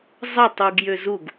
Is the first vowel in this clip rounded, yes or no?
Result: no